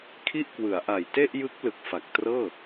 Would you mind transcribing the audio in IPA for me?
kʰ i˥˩ ʔ k w ɯ˩˦ a̯ ʔ a˨˩ j t e˥˩ ʔ j ɯ˦˥ k̚ l ɯ˨˩ k̚ f a˨˩ k̚ t r ɤː˥˩

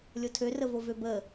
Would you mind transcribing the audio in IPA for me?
lʲ o tʰ ø r ə v o v ø b ə

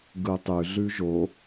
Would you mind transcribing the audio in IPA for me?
ɡ ɯ tˤ ʉ ɮ ʉ ʒ o

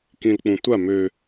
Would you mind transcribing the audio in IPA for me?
k ĩ l k͡p ũ tʷ a m ø

